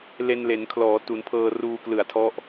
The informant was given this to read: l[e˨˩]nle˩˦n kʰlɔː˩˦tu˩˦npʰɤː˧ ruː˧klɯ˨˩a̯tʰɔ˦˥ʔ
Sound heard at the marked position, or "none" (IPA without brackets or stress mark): e˧